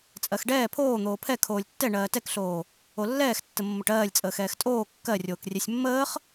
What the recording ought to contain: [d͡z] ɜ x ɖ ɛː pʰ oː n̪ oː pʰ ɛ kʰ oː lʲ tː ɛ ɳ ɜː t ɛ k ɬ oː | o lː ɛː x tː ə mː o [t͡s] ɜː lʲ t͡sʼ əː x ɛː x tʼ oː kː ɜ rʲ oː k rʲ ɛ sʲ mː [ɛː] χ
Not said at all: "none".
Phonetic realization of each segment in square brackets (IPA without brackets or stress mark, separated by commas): t͡sʼ, ʈ, əː